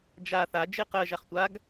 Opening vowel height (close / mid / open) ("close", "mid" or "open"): open